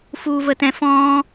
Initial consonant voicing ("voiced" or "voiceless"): voiceless